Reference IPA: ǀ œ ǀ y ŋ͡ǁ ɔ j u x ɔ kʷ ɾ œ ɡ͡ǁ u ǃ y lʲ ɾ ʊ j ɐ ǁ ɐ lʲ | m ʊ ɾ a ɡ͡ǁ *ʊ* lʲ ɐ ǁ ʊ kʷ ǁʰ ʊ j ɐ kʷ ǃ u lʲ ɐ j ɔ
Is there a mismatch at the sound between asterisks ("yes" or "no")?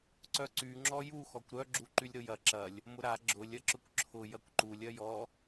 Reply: no